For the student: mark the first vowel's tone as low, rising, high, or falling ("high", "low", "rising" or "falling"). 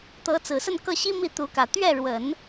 rising